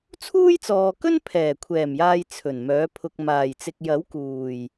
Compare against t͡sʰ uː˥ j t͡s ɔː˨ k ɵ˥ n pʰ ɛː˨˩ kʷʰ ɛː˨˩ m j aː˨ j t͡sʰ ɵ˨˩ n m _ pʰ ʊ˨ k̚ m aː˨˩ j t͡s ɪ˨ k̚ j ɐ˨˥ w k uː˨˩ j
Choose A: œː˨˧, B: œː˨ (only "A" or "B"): A